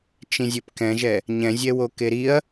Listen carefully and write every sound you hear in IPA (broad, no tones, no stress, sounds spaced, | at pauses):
t͡ʃ ĩ zʲ ɘ p k ɛ̃ ʒ ɛ | ɲ ɛ̃ zʲ ɛ w o k e ɾ i ɐ̯